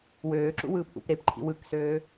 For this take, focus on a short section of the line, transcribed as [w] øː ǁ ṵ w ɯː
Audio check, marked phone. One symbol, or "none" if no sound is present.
w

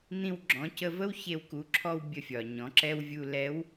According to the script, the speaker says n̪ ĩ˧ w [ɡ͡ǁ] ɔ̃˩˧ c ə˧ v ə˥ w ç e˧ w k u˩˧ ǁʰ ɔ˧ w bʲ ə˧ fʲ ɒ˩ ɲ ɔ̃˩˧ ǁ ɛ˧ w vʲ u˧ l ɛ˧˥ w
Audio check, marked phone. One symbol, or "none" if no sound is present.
ɡ͡ǁ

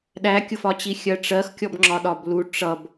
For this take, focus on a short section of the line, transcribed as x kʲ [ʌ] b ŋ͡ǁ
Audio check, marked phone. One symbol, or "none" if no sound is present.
ɔ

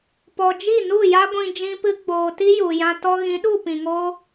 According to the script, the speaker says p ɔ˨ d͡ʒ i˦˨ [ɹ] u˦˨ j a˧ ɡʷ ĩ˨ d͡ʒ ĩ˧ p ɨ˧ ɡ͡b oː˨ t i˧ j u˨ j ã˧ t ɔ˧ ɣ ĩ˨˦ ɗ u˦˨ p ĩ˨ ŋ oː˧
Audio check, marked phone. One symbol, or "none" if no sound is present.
n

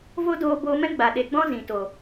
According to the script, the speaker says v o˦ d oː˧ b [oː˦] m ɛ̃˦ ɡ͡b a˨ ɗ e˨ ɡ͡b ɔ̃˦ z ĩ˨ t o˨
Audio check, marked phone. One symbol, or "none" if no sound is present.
oː˧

